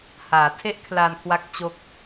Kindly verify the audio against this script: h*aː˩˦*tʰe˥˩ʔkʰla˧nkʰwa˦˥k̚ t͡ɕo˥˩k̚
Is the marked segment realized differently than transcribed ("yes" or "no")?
no